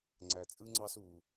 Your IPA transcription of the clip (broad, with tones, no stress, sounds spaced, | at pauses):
ŋ͡ǀ æ˧ t͡sʼ ɯ˥ ŋ͡ǀ ɑ˥ s u˧